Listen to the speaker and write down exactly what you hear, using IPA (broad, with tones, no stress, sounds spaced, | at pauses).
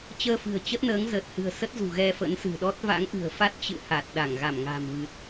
t͡ɕ əː˧ f ɨ̤˨˩ ə̯ t͡ɕ ə˦˥ t̚ n əː˨˦ ŋ z əː˨˩ t̚ h ɨ̤˨˩ ə̯ s ə˦˥ t̚ z ṳ˨˩ ɣ ɛ˧ f ə̰˧˥ n s ɨ̤˨˩ ɗ ɔ˦˥ t̚ v a̰˧˥ ŋ ʔ ɨ̤˨˩ ə̯ f a˦˥ t̚ t͡ɕ ɨ̰˧˨ h a˨˩ t̚ ɗ a˧˩ ŋ ɣ a˧˩ m ŋ a̤˨˩ m v ɨ˨˩ t̚